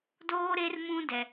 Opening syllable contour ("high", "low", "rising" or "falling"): high